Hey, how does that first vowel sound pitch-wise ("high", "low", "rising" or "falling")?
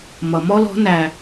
low